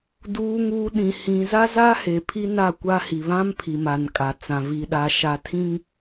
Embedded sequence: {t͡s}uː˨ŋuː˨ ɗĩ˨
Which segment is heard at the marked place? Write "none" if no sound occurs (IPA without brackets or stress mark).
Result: d